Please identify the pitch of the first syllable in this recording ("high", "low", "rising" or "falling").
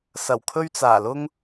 low